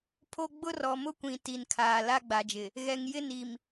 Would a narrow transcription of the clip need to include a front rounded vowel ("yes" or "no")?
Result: no